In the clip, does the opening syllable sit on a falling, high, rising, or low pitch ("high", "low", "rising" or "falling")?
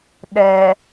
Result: low